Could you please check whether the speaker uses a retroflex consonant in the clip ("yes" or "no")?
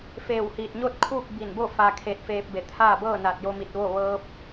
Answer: no